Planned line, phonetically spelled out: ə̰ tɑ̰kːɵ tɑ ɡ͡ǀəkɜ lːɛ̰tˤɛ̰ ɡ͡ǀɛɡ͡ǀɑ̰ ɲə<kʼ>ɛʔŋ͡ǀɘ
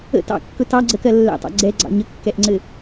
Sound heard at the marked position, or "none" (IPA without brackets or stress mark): kː